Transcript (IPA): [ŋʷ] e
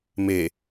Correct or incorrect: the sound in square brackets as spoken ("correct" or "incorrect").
incorrect